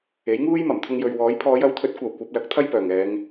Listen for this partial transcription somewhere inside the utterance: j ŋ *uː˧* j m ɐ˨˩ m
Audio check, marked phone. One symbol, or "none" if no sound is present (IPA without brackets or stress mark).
uː˥